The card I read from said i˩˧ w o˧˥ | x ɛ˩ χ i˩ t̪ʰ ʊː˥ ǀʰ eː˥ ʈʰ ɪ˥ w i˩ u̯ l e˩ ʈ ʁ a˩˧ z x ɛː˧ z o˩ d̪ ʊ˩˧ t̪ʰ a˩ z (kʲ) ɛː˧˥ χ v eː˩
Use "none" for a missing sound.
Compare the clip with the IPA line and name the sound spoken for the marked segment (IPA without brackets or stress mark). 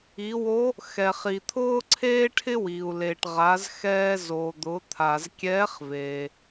kʲ